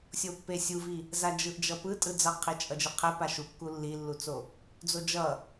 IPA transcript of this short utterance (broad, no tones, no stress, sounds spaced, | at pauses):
sʲ o pː e sʲ u v i | z a d͡ʒ ɯ ʔ d͡ʒ ʌ p ɯ tʼ ɯ d͡z ʌ qʰ e t͡ʃʼ ʌ d͡ʒ ɯ qʰ ɛ p a ʃ u kː u lː i lː u t͡s o | d͡z o d͡ʒ ʌ